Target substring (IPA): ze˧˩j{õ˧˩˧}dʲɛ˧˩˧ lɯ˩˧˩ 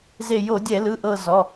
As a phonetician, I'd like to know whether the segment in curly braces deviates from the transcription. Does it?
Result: yes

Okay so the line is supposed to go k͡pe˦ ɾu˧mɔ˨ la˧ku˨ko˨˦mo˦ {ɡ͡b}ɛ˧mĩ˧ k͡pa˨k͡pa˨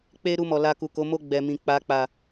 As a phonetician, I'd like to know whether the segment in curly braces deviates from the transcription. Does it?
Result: no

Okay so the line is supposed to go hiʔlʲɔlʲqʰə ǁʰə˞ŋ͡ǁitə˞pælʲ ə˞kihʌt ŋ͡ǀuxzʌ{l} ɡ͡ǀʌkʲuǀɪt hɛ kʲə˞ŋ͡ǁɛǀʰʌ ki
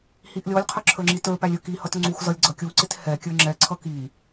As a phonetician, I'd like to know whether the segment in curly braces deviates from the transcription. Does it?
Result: yes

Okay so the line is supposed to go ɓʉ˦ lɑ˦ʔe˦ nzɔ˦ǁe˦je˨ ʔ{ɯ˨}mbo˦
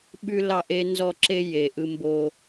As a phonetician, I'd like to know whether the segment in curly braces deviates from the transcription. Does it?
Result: yes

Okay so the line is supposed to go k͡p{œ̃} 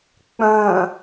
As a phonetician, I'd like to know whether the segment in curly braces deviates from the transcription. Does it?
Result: no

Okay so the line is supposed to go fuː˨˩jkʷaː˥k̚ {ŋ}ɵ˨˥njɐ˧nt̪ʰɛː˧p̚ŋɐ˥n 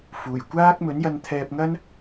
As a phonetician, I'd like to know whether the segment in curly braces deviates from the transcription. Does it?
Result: yes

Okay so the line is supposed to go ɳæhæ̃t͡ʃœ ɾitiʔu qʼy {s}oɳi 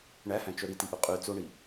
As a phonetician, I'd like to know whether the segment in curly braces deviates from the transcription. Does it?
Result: yes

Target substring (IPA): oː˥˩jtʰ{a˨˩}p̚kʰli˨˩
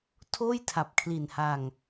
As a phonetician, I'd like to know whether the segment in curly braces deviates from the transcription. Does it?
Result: no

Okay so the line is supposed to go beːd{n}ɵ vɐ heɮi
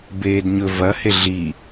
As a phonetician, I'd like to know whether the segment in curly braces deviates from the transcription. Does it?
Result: yes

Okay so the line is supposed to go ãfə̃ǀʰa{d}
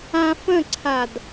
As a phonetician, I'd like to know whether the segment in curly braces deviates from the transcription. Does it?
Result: no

